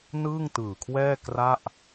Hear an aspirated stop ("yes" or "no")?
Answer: yes